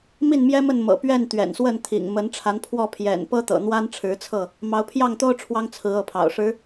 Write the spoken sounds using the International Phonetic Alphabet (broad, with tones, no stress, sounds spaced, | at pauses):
m i˥˨ n m j ɛ˦ m ə˥˨ n m ɤ̰˨˩ p ɥ ɛ˥˨ n t̪ ɥ ɛ̰˨˩ n s w ə˥˨ n t̪ʰ ḭ˨˩ ŋ m ə˨˦ n ʈ͡ʂʰ a˨˦ n pʰ w ɔ˥˨ pʰ j ɛ̰˨˩ n p ɤ˦ t̪ ɤ̰˨˩ n̪ w a˦ n ʈ͡ʂʰ ɻ̩˨˦ t͡sʰ ɤ˥˨ | m ɑ˨˦ ʊ̯ pʰ j ɑ˥˨ ŋ t̪ o˦ ʊ̯ ʈ͡ʂʰ w ɑ˦ ŋ t͡sʰ ɹ̩˨˦ ɤ˨˦ pʰ ɑ̰˨˩ ʊ̯ ʂ ɻ̩˨˦